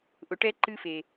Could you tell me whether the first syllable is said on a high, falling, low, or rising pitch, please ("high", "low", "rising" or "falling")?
low